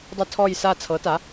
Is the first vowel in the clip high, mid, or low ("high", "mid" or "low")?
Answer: mid